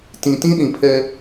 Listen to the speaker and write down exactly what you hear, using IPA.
t ĩ˨ t ĩ˦ ɗ ĩ˨ pʰ ɛ˦

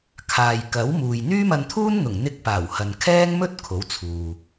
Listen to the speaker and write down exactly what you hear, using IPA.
kʰ aː˨ j k ɐ˨˥ w m uː˨ j n̪ yː˥ m ɐ˧ n t̪ʰ uː˥ n n̪ ʊ˨˩ ŋ n̪ ɪ˧ k̚ p aː˨˩ w h ɐ˨ n kʰ ɛː˥ ŋ m ɵ˥ t̚ kʰ o˨˥ w t͡sʰ uː˨

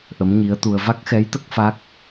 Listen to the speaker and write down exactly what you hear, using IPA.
ʔ ə˧˥ m ɲ i˧˥ ə̯ t̪ u˧ ə̯ v a˦˥ k̚ x ɛ˧˥ j t̪ ə˦˥ k̚ f a˦˥ k̚

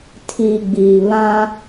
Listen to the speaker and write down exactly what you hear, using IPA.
tʰ i˨ ɡ͡b iː˨ β ã˦

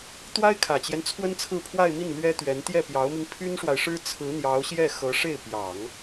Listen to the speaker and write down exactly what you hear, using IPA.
t̪ w a˥ ɪ̯ kʰ ä˨˩ t͡ɕ j ɛ˦ n t͡sʰ w ə˥ n t͡sʰ ɹ̩˥˧ pʰ w a˥˧ ɪ̯ m i˥˩ n l ɥ ɛ˥ t̪ ɥ ɛ˧˥ n t̪ j ɛ˥˩ p j ɑ˧˥ ʊ̯ m i˧ ŋ pʰ y˥ n ʂ w a˨ ɪ̯ ʂ ɻ̩˥ t͡sʰ ɹ̩˧˥ n̪ j ɑ˧˥ ʊ̯ ɕ j ɛ˥˩ x ɤ˧˥ ʂ e˥˩ ɪ̯ p j ɑ˨˩˦ ŋ

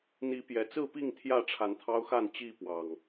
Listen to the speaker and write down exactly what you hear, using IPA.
n̪ i˨˦ p j ɛ˨˩ t͡s ɹ̩˥˨ p i˥˨ ŋ t̪ʰ j ä˥˨ ʈ͡ʂʰ a˨˦ n t̪ʰ ɑ˦ ʊ̯ x a˥˨ n t͡ɕ i˥˨ p w ɑ˨˩ ŋ

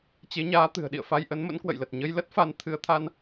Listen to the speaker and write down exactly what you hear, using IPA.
t͡ɕ e˨˦ ɲ aː˨˦ t̪ ɨ̤˨˩ ə̯ ɗ ḭ˧˨ ə̯ f a˧ j ʔ ə˨˦ n m ə̰˧˥ n k w ə̰˧˨ j l ə˨˩ t̚ ɲ ə˧ j l ə˦˥ t̚ f a˨˦ n t̪ʰ ɨ˨˦ ə̯ t̪ʰ a˧ n

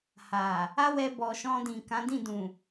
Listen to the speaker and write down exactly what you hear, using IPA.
h a˨ | a˦ w ɛ˧ b ɔ˨ ʃ ɔ̃˧ d ĩ˨ k ã˨˦ d ĩ˦˨ d ũ˨

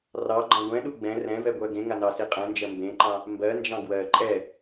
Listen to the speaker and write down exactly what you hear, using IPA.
r ɑ ɡ͡ǃ ɑ̃ ɡʷ ɛ̃ ɗ u ɡ͡b ɛ̃ r ɛ̃ v ɛ ɡʷ ɜ ɡ ẽ ŋ a n ɑ s i qʼ ɛ̃ n d͡ʒ ɜ m b ẽ ǃ ɑ̃ | m b ɜ n d͡ʒ ɑ̃ ɡ w ɜ ǃʼ ɛ

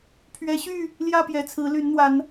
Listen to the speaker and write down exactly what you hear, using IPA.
pʰ ɥ ɛ˨˦ ɕ y˥˨ | l j ä˥˨ p j ɛ˨˩ t͡sʰ ɹ̩˨˦ l y˨˦ n n̪ w a˨˦ n

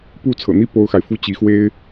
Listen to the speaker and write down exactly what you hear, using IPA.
p u˥˩ t͡sʰ ɤ̰˨˩ n̪ i˥ p o˥ ʊ̯ x a˨ ɪ̯ f u˥ t͡ɕ i˧˥ x w e˥ ɪ̯

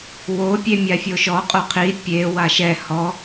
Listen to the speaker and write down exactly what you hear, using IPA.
w o pʲ e mʲ a fʲ o ʃ ɔ qʼ o qʰ i pʲ e w a ʃ ɛ h ɔ

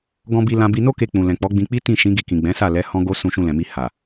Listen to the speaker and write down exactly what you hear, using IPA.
ɡ ɔ̃˧ b i˧ l ã˧ b i˧ n o˦ k e˧ k͡p ũ˨ l ɛ̃˨ k͡p ɔ˨˦ ɡ͡b ĩ˧ k͡p i˦ t ĩ˦˨ ʃ ĩ˨˦ ɡ i˧ k ĩ˨ ɡ͡b ɛ̃˨˦ s a˦˨ l ɛ˨˦ h ɔ̃˦ ɡ o˦ s ũ˧ ʃ ũ˧ l ɛ̃˨ m i˧ h a˨

